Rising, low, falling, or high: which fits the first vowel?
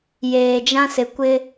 low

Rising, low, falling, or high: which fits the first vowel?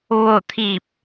falling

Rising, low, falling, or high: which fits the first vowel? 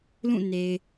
falling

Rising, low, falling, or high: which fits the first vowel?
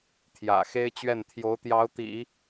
low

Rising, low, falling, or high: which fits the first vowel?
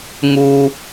high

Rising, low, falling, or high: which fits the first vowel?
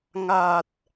low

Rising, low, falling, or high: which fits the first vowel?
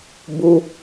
high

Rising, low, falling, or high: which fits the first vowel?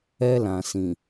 high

